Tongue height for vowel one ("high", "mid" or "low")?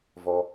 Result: mid